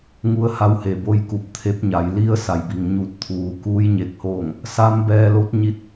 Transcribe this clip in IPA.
ŋ u˧˥ ə̯ h a˧˥ w h e˩ b o˧˥ j k u˧˩ p̚ t̪ʰ e˧˥ p̚ ɲ a˩˧ j l i˧˥ ə̯ s a˩ j b i˩ ŋ ɲ u˧˩ t̚ t̪ʰ uː˩ k uː˧˥ j ɲ e˧˩ k̚ h oː˥˨ ŋ | s a˧˥ m b ɛː˧ l o˧˥ t̚ ɲ i˧ t̚

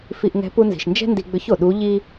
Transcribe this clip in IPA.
f i˧ ʔ ŋ ɛ̤˧˥ p u˧ n z i̤˩ ʃ n d͡ʒ ɛ̤˥ n d i˧ ɡ͡b ʏ˧˥ ç o˩ ɗ u˧˥ ʎ i˥

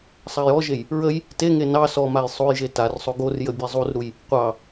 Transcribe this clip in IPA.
sˤ a j ɔ ʒ e j | ɹ ə j | t e ŋ e n ɑ s ɔ m a j sˤ o j ʒ e t a r sˤ o ɡ o r j ə bʲ e zˤ u r ɾ u j | qʷ ɑ

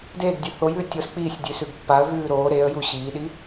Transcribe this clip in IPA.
d eː ɡ dʲ ʉ θ o j ʉː tʲ o s k͡p iː sʲ dʲ ʉː s ʉ ɡ pː a ə̯ ɣ ʉː ɾ oː ɾ e ə̯ j u ɕ iː ɗ i

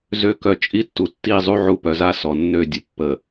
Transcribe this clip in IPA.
z ø˨ k œ˨ t͡ʃʼ i˦ tː u˨ tː i˦˨ zˤ u˦ ʕ u˦˨ p œ˨ z a˦ s ɔ˨ nː ø˦˨ dʲ ə˨ pː ə˨

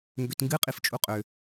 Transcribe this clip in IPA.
ŋ ɡ ø t ŋ ɡ ɨ qʼ i f t͡ʃʼ u qʼ ø

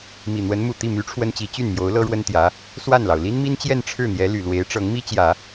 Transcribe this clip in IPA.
m i˨˩ n̪ w ə˧˥ n m u˨˩ t̪ i˥˩ m y˧˥ ʈ͡ʂʰ w ə˥ n t͡ɕ i˧˥ t͡ɕ y˥˩ n m j o˧˥ ʊ̯ l ɤ˥ ɻ w ə˥ n t̪ j ä˧˥ | s w a˥˩ n l ɑ˩ ʊ̯ l i˥ n m i˥ n t͡ɕ j ɛ˥˧ n ʈ͡ʂʰ ɻ̩˥˩ n̪ j ɛ˧˥ l y˨˩ l w e˧˥ ɪ̯ ʈ͡ʂ ɤ˧˥ ŋ m i˥ t͡ɕ j ä˨˩˦

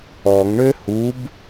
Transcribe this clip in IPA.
ɔ ŋ ɳ ø h u b

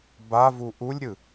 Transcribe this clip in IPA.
b a v u ʔ u lʲ ɾʲ ɯ

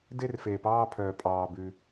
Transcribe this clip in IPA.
d e˥˧ r f eː˨ p ɑː˥˧ pʰ œː˨ pʼ ɑː˨ b ʉ˨

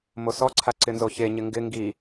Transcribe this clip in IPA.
m o s ɔ ǀʰ a ǀ ɪ n z o ç e ɲ ɪ ŋ ɡ ɪ ŋ ɡ i

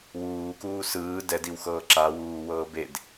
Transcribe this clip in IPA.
w uː k uː s ɯː d ɛ d i w x ɤː ǁ a w uː w ɤː b e d

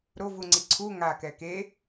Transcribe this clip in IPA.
ɾ o v u ŋ͡ǀ i ǀʰ u ŋ a k ɛ k e

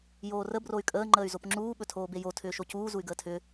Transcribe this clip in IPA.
j oː r ə b r o y̯ kʼ əː ŋ͡ǃ əː y̯ z o p ŋ͡ǁ uː ɓ ɵ tʰ oː b e j o tʰ ʏː ʃ o c uː z u y̯ ɡ əː tʰ ʏ

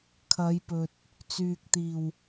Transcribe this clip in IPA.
kʰ ɐ˨˧ j p ɵ˨ t̚ | t͡s yː˨ k̚ t̪ iː˨˩ w

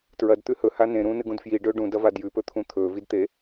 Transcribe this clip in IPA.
t ɹ ɐ d t̪ ʉ h ɵ h a n ẽ ɾ ũː n ɨ ɡ ũ d f j i ɖ ɵː ɖ ũ d ɐ v a d j ʉ p ɵ t̪ʰ ũ t̪ʰ ɵː v i d t̪ e

